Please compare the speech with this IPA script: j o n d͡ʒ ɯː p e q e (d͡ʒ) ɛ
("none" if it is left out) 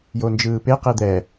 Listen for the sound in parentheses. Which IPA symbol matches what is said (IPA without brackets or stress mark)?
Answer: d̪